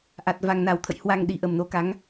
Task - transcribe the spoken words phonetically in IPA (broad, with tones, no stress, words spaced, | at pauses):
ʔa˨˩t̚ va˨˩ŋna˨˩wt̪ʰə̰˧˨j hwa˧ŋ ɗi˨˩ʔə˨˩mno˨˦ka˨˦ŋ